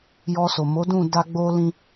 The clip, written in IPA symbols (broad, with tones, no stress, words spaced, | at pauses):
jɔ˧so˨ mo˨˦dũ˦˨ da˧ɡ͡bo˧lĩ˧